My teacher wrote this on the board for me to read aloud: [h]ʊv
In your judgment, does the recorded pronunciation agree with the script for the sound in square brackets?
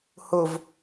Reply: yes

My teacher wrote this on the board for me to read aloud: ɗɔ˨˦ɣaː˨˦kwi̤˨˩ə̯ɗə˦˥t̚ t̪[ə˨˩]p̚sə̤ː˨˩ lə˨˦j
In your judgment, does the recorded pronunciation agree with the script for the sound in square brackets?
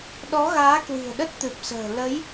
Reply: no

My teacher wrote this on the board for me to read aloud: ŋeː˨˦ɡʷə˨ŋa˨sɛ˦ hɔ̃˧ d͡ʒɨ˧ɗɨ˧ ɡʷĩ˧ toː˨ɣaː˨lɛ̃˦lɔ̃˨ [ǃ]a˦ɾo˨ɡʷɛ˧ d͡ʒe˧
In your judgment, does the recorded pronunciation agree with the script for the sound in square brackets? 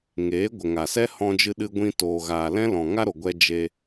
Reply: no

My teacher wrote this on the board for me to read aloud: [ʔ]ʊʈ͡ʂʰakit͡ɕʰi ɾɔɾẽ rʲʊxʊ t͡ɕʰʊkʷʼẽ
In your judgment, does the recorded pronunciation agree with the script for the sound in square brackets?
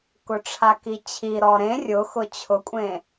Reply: no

